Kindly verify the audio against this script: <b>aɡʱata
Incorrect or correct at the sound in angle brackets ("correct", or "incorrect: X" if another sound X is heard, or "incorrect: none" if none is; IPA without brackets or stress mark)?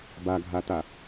correct